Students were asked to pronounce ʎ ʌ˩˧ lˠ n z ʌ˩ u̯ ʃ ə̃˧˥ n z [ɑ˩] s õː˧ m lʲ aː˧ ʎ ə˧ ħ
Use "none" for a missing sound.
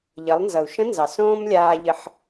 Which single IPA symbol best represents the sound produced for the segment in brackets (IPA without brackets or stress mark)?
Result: ɑ˩